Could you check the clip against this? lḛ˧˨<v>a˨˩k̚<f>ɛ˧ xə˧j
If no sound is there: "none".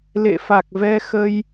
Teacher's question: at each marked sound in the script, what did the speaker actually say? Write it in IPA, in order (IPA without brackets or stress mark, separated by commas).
f, v